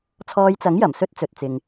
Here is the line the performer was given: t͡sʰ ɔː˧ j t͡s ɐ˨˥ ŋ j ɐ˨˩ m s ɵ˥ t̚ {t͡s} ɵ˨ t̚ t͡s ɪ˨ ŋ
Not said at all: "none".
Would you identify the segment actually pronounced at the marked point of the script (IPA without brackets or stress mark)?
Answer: t͡s